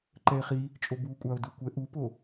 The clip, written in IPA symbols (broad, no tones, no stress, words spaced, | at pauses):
ǃɛe̯χi | t͡ʃʼobukʷʼao̯ dukʷɛ ʔupo